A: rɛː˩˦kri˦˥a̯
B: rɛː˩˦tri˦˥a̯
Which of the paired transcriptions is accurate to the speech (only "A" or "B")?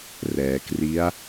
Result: A